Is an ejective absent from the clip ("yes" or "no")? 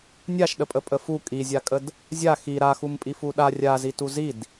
no